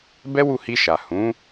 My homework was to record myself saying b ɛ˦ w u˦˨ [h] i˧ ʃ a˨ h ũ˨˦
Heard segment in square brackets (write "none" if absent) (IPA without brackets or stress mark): h